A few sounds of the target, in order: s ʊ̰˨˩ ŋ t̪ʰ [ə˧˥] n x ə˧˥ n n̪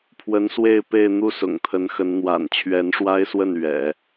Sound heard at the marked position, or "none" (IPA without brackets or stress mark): ə˧˥